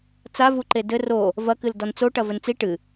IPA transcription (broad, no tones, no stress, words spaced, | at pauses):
t͡savuǃe dɘ ro | vɐkɨl dɔnt͡soʈɐ vɘnt͡si ʈɨ